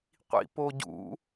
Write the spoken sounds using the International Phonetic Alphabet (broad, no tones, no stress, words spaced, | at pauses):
qʷḭpoɟṵ